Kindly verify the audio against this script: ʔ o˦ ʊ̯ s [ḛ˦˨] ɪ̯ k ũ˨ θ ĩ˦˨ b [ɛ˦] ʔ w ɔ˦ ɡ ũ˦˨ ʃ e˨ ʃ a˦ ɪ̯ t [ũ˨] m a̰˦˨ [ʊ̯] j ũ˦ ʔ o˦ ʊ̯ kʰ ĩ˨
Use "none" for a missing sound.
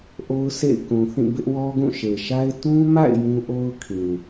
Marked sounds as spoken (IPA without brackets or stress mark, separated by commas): ḛ˦˨, ɪ˦, ũ˦, ɪ̯